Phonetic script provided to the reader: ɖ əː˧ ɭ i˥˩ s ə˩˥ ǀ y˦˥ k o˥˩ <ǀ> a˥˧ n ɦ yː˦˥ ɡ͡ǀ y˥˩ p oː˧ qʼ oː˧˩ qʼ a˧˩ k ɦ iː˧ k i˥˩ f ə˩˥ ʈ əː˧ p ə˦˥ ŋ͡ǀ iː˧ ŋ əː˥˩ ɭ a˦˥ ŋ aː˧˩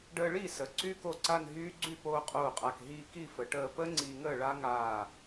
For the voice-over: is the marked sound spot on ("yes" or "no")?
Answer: yes